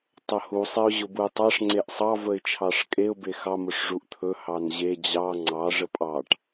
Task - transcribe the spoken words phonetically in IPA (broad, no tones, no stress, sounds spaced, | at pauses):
tˤ ə h u sˤ e ʊ̯ ʑ ʊ b u ɪ̯ tˤ ɑ ʂ ŋ͡ǀ e ʔ sˤ ɑ v ə ɪ̯ t͡ʃʰ ɑ ʂ kʼ e ʊ̯ b e x ɑ m ʊ ʂ ʐ u ʔ t̪ʰ ɵ h ɑ n ʑ e d͡ʑ ɑ ŋ͡ǀ ɑ ʐ ə pʼ ɑ ʈ